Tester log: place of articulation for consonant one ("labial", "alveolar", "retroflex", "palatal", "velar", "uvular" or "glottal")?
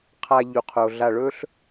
uvular